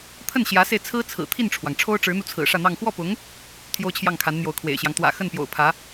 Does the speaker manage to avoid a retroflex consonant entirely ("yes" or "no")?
no